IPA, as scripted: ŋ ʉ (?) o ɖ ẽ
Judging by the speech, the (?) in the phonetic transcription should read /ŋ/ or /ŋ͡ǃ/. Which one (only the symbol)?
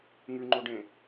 ŋ͡ǃ